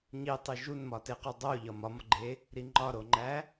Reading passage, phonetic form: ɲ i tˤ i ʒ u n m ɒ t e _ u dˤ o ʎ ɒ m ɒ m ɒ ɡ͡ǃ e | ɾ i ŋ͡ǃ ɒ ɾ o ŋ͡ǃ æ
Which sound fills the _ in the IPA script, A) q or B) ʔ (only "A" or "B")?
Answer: A